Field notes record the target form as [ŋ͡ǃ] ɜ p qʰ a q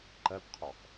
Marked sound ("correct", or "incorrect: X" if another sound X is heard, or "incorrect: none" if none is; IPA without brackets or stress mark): incorrect: ǃ